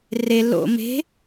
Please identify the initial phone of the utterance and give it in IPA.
r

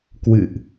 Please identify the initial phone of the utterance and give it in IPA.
k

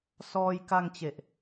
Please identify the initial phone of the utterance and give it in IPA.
s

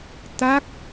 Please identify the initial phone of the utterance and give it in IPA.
t̪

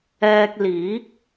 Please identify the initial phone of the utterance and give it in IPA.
ɛː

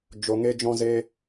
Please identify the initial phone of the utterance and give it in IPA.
d͡ʒ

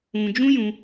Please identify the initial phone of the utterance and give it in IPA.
ũ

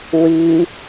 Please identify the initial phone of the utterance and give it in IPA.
w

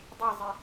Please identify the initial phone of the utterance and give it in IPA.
dˤ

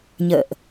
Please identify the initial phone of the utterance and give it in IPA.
ɲ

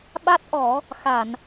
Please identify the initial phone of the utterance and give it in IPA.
ɓ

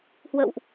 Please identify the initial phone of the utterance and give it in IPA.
h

